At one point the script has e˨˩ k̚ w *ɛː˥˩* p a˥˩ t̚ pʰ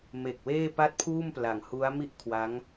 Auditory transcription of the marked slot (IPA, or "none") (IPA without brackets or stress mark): eː˥˩